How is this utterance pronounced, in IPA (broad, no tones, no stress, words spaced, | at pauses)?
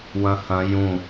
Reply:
wɐ̃hɐ̃ jũ